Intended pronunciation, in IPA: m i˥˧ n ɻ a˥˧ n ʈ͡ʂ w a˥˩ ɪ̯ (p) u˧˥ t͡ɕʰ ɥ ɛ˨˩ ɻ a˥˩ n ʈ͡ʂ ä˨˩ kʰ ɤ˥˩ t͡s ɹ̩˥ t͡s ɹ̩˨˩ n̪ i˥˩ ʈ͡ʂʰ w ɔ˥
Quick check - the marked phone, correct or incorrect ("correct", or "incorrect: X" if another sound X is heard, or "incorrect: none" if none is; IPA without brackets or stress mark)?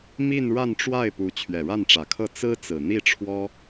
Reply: correct